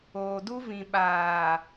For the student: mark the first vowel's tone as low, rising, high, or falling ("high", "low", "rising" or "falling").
low